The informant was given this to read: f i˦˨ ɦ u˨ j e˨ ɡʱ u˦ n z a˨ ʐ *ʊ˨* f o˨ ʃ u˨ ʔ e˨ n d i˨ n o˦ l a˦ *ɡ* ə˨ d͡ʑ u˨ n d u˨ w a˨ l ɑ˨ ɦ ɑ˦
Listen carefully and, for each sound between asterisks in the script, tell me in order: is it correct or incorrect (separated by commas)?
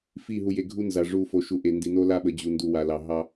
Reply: incorrect, incorrect